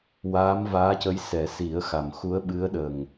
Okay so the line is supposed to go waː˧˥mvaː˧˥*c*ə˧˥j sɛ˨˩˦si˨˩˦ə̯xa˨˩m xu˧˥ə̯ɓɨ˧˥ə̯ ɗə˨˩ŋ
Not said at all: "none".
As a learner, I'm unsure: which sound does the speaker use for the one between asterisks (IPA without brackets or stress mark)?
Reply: c